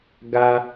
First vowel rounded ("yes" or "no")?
no